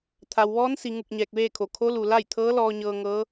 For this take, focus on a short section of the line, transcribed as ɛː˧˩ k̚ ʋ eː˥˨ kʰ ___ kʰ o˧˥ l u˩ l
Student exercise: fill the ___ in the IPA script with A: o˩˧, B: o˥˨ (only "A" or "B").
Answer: A